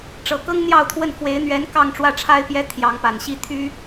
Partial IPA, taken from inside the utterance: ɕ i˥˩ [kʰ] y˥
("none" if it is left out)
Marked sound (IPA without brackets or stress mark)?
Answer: t̪ʰ